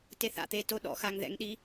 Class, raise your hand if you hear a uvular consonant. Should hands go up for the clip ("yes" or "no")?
no